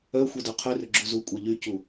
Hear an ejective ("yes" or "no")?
yes